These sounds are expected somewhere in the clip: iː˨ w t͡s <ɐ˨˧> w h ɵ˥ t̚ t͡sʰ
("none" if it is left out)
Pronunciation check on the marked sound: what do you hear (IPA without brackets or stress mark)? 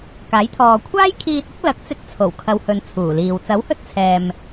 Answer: ɐ˨˥